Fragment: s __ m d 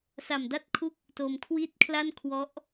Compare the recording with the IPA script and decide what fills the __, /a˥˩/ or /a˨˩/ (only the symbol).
a˨˩